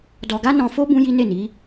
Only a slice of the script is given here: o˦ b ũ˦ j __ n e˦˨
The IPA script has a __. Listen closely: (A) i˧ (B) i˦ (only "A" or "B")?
B